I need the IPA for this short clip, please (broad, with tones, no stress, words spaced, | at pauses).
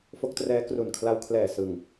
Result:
fo˦˥k̚trɛː˦˥ kru˨˩nkʰla˧wkʰlɛː˨˩ sɯ˨˩ŋ